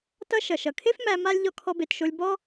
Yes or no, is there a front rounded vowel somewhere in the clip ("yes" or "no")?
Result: no